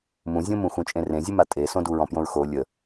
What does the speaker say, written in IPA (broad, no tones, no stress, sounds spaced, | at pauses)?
m ũ zʲ õ m ũ x ũ t͡ʃʼ ẽ r ẽ zʲ u m a tʼ e s õ d u ɹ ɔ̃ p j õ ɹ x o lʲ ə